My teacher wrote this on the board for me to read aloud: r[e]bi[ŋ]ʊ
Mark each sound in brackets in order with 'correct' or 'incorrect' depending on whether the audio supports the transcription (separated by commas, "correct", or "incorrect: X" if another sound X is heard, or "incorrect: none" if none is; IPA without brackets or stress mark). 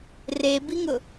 correct, correct